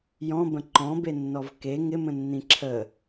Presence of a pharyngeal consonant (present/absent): absent